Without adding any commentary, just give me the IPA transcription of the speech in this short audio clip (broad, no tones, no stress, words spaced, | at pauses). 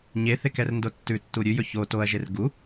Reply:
ɲeθek ɛrndotːʉtːu ɾʲʉjɵ ço toɐ̯ʒer ɡu